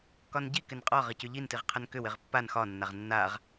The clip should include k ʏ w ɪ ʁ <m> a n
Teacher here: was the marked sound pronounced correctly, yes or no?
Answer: no